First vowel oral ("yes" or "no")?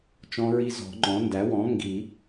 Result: no